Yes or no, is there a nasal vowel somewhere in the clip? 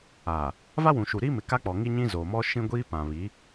yes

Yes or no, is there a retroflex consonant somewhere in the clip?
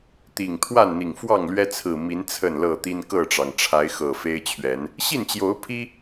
yes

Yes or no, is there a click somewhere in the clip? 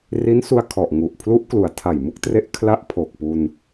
no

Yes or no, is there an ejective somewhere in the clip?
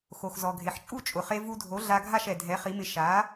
yes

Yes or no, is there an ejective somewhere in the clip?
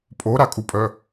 yes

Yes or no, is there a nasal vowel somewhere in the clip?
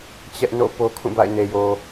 yes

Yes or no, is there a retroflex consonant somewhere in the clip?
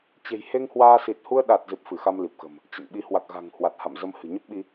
no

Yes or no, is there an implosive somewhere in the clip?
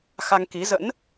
no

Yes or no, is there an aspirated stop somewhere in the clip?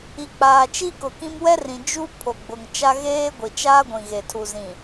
yes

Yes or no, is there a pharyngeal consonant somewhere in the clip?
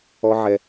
yes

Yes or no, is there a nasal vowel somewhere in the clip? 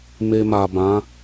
yes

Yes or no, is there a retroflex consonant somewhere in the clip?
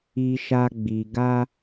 no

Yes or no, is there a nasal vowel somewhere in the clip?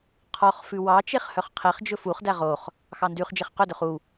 no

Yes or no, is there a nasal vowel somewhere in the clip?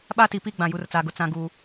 yes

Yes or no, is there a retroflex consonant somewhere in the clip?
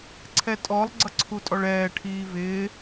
yes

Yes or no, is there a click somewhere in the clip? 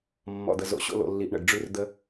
no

